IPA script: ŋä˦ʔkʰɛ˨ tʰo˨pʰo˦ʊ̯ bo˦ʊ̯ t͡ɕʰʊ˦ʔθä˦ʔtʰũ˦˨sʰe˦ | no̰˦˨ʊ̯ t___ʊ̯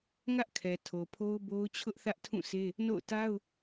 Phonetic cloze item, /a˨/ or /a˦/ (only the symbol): a˦